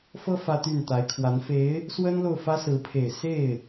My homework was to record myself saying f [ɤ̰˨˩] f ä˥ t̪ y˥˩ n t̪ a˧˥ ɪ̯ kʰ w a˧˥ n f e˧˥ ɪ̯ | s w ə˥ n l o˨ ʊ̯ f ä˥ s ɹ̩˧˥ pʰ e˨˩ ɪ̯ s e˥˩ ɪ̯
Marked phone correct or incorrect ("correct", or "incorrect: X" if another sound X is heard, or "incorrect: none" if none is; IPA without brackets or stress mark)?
incorrect: ɤ˥